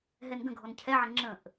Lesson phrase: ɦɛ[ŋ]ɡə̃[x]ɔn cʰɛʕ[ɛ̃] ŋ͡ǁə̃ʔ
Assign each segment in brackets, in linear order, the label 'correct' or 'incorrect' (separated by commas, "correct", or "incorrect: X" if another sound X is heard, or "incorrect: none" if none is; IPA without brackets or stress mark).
incorrect: n, incorrect: ɡʱ, incorrect: ə̃